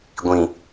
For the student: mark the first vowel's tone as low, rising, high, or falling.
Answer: low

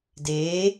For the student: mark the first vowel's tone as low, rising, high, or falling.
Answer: rising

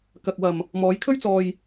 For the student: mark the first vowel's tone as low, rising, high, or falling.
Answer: low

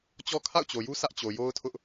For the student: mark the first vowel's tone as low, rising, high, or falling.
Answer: high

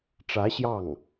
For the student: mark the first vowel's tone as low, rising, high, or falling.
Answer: rising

